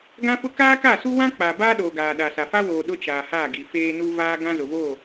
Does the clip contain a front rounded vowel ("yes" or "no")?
no